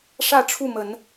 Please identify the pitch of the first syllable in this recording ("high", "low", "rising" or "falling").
falling